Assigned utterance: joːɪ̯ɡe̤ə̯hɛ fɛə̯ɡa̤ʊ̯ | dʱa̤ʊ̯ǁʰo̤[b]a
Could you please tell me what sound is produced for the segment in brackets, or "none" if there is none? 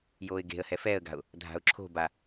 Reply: b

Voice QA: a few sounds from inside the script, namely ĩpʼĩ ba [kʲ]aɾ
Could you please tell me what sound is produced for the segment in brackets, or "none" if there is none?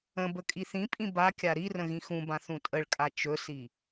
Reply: kʲ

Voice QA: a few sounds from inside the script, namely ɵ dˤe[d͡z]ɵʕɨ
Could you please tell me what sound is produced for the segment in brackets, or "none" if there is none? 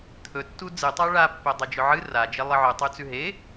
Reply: d͡ʒ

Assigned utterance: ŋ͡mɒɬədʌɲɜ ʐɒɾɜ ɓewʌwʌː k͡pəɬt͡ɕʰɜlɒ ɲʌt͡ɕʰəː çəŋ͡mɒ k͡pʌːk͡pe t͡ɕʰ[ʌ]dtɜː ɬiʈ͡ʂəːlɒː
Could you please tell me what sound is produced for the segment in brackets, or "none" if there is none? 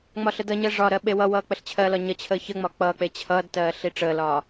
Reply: ʌː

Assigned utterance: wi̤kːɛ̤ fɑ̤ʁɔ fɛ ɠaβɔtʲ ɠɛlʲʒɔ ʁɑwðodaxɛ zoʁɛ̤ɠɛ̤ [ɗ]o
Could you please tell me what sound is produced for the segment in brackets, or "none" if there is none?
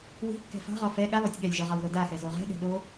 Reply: ɗ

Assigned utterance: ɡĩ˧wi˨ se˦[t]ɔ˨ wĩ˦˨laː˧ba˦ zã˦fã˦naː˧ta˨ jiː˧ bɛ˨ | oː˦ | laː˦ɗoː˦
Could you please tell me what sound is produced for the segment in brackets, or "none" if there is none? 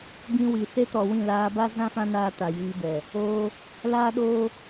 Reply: t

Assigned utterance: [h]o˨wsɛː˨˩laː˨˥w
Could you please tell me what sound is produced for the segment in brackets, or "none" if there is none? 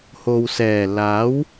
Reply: h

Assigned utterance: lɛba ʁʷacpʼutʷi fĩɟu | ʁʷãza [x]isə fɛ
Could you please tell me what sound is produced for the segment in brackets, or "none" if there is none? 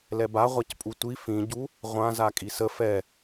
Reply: kʼ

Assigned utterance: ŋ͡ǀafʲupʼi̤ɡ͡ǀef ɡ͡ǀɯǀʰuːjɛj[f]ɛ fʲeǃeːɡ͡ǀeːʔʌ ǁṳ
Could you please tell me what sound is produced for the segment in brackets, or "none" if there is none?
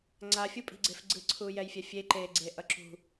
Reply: fʲ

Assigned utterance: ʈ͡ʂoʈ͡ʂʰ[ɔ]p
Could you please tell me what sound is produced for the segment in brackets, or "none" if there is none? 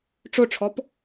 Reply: ɔ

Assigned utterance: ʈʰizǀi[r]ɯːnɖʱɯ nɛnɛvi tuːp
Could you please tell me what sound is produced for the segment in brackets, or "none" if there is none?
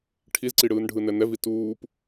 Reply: ɽ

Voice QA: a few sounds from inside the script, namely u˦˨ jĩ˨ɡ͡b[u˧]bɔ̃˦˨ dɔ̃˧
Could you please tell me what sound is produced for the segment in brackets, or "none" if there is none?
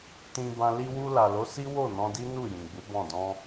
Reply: u˨˦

